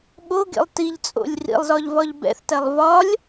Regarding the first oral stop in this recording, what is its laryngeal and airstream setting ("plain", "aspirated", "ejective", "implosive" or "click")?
implosive